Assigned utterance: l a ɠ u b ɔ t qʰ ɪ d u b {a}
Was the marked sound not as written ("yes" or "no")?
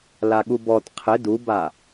no